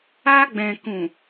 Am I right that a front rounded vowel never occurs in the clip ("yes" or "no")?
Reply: yes